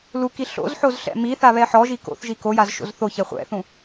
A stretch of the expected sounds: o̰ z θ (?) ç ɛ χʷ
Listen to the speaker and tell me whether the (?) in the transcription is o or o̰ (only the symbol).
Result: o